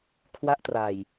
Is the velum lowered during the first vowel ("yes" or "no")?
no